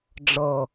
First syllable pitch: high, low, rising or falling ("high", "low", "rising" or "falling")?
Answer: low